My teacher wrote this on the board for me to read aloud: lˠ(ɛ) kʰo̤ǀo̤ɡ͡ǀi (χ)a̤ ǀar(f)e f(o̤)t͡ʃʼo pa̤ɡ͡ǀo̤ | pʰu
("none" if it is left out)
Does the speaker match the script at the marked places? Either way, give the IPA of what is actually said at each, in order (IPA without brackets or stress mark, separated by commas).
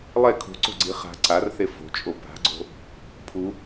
ɛ, χ, θ, o̤